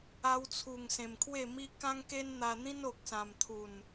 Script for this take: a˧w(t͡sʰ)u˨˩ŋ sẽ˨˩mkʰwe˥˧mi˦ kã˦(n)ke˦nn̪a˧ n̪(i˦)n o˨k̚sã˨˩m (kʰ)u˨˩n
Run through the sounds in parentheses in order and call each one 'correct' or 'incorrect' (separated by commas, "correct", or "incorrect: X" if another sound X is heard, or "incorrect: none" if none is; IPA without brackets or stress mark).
correct, incorrect: ŋ, incorrect: ĩ˦, incorrect: t̪ʰ